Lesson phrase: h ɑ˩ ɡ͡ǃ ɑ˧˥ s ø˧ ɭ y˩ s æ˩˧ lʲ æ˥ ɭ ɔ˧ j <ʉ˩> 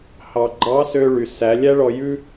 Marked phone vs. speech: incorrect: ʉ˥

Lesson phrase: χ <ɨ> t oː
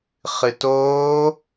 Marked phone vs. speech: correct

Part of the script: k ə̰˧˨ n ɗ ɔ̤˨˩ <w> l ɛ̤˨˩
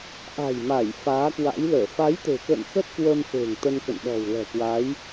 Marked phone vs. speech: correct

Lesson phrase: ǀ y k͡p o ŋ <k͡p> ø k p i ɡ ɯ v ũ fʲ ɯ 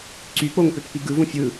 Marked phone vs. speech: incorrect: p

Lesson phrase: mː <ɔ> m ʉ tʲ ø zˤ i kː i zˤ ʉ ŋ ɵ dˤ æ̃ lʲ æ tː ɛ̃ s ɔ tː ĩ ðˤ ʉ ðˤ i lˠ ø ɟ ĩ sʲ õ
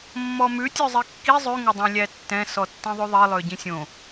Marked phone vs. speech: correct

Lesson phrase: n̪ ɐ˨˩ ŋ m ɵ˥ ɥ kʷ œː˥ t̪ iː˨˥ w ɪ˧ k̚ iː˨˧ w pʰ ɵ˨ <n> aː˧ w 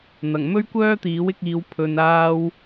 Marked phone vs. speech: correct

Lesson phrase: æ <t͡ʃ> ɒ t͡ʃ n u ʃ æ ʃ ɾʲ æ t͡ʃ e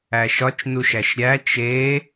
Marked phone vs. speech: incorrect: ʃ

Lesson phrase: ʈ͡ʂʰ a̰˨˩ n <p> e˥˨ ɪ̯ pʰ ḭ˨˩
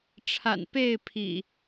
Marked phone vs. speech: correct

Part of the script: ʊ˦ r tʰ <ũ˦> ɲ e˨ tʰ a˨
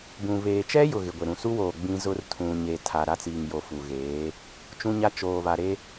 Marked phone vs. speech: incorrect: ũ˨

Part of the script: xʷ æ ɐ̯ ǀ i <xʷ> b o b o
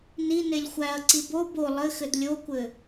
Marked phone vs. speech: incorrect: none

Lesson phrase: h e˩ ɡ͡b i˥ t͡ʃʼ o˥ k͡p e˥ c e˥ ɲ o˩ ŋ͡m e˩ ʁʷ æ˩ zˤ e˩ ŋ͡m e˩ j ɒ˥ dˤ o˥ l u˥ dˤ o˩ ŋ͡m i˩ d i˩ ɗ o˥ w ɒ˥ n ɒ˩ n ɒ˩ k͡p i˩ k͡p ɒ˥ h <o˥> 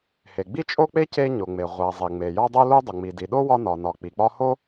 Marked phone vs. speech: correct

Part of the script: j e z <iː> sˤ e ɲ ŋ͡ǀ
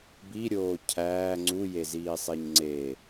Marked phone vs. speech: correct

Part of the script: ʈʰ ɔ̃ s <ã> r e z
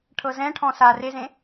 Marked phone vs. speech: incorrect: a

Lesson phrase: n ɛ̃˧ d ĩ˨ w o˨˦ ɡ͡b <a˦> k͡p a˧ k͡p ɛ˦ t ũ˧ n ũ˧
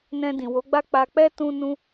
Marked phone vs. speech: correct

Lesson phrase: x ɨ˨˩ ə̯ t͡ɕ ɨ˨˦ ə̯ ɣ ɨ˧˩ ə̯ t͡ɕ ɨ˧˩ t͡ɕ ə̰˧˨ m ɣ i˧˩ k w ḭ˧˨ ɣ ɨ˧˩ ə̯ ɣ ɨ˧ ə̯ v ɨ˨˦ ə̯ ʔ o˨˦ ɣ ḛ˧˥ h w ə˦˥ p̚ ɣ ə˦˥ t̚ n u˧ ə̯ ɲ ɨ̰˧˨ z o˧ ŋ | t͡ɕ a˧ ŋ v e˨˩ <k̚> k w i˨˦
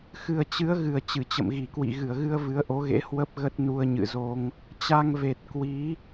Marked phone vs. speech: incorrect: t̚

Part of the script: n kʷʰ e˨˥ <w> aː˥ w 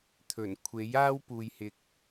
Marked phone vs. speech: incorrect: j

